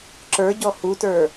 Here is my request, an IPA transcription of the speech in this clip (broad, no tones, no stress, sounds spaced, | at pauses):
ǁ ə˞ ɟ ɔ h u t ə˞